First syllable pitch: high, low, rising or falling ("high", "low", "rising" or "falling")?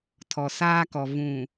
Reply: low